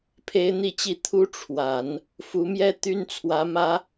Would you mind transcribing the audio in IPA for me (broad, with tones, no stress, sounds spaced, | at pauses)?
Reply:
pʰ e˥ ɪ̯ n̪ i˥˧ t͡ɕ i˥˩ t̪ʰ u˥ ʈ͡ʂʰ w a˨˩˦ n | f u˧˥ m j ɛ˥ t̪ y˥ n t͡sʰ w ä˧˥ m ä˥